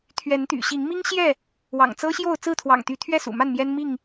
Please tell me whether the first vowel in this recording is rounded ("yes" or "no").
no